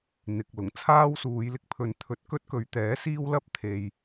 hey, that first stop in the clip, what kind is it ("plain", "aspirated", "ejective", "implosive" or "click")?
plain